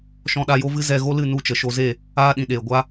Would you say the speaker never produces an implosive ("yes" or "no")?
no